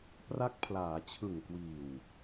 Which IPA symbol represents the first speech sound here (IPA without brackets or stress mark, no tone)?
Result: p